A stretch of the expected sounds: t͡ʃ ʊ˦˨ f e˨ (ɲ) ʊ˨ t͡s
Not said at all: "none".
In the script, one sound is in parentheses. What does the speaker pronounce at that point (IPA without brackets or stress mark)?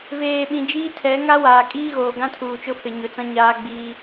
ɲ